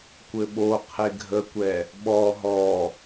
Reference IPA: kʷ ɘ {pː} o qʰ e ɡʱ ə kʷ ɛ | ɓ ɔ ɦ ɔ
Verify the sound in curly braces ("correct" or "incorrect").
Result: incorrect